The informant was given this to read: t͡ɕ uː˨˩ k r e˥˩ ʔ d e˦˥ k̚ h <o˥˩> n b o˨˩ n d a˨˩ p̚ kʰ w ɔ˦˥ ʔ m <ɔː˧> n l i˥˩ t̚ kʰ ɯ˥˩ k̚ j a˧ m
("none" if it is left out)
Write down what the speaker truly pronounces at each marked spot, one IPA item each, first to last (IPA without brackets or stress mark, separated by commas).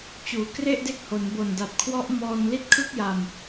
o˩˦, ɔː˧